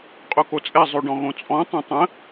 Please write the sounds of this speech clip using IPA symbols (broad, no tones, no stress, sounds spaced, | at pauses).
qʼ o k o t͡sʼ ɛ zˤ ʉ ɖ ɔ̃ ɣ õ t͡sʼ ɔ̃ tˤ ɛ̃ tˤ ə̃